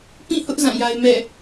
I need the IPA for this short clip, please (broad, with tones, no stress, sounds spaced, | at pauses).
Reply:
p ĩ˦˨ h ʊ˦ ʔ z ã˦˨ j a˦ ɪ̯ m ɛ̰˦˨